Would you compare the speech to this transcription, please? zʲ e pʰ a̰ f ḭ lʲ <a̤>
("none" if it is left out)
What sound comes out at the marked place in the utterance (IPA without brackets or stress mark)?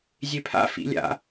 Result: a̰